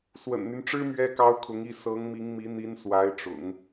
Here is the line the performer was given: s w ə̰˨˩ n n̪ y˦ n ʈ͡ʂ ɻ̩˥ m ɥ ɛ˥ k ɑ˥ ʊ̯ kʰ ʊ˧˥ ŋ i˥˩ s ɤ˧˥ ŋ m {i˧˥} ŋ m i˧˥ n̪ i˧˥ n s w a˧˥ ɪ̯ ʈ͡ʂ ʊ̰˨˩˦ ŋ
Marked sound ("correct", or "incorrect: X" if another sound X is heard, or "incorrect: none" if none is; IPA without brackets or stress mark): correct